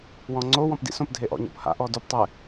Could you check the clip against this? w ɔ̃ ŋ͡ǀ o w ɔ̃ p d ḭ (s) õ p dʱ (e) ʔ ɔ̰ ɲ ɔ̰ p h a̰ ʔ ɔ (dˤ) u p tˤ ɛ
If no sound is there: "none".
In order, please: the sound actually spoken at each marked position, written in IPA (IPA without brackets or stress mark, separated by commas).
s, e, d